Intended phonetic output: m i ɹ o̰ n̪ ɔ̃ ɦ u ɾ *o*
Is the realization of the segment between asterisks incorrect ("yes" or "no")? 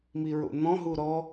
yes